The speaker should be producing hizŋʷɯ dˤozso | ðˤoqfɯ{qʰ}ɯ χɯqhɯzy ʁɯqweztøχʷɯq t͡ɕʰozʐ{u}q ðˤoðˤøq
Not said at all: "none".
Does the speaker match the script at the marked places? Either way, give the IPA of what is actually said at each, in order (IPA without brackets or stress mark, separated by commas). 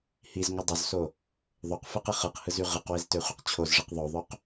q, ɯ